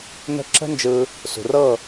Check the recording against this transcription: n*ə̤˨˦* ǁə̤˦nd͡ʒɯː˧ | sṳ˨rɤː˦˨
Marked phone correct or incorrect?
incorrect: ə̤˦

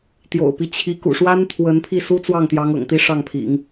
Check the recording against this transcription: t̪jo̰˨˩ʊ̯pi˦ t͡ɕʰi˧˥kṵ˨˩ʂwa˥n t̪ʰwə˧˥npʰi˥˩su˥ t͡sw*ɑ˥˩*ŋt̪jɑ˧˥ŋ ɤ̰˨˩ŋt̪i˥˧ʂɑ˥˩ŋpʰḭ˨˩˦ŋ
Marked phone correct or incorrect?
correct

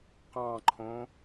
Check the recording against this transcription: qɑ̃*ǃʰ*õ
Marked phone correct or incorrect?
correct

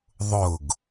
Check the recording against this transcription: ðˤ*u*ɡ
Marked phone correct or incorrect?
incorrect: ʊ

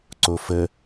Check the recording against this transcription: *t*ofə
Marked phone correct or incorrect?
incorrect: ǀ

